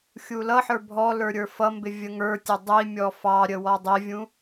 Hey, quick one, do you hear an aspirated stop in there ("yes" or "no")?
no